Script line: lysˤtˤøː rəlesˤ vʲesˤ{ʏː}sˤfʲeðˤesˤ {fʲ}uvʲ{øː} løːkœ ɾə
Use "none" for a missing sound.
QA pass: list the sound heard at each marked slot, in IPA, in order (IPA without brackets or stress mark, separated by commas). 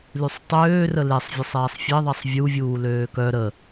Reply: ɛː, vʲ, uː